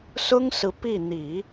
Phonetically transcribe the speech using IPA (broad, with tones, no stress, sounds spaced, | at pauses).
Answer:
s ʊ˥ ŋ s ɹ̩˧˥ p i˥˩ n̪ i˨˩˦